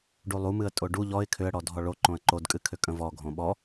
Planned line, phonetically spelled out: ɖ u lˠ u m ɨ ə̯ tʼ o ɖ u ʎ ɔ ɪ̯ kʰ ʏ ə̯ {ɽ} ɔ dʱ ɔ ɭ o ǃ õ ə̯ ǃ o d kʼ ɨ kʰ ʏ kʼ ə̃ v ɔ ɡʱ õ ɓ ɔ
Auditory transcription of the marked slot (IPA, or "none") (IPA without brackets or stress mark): ɽ